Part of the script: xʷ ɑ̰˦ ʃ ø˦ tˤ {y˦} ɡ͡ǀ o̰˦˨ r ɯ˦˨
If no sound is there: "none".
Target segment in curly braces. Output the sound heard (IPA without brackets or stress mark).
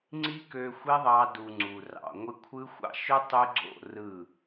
y˦